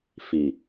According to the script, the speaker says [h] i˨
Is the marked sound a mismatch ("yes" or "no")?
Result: yes